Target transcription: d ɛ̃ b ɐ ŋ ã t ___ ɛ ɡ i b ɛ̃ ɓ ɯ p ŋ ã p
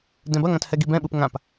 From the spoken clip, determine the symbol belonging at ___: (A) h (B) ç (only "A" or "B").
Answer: A